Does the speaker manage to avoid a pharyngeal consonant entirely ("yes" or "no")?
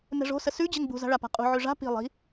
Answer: no